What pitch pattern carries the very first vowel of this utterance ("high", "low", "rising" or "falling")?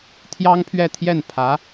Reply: high